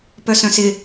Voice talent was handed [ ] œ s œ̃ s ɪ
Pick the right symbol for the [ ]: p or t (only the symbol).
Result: p